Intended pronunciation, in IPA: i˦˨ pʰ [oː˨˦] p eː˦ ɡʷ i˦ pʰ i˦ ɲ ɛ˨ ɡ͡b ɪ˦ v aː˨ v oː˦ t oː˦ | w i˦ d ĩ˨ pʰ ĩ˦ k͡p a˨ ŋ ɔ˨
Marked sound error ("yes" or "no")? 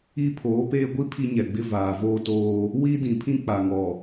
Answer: no